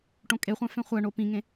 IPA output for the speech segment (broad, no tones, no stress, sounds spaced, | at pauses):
ʈ õ kʼ e χʷ æ̃ f ẽ χʷ æ ɳ o p ĩ ŋ ẽ